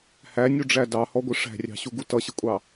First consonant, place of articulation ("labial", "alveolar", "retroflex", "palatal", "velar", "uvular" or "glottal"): glottal